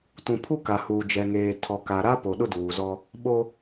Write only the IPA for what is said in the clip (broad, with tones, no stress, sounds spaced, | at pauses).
t ũ˨ pʰ u˦ k a˨ h uː˨ d͡ʒ ɛ˨ ŋ eː˨ tʰ ɔ˨ k a˨ ɾ a˦ p o˨ ɗ ʊ˦ d uː˨ z ɔ˦ | ɓ o˦